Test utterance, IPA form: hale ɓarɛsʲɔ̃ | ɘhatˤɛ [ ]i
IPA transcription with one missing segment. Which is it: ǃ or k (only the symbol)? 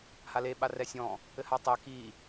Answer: k